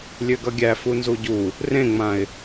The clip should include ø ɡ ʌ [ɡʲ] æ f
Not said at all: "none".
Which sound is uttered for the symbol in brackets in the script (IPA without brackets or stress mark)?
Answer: ɡʲ